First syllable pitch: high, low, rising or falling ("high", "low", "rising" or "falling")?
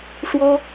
high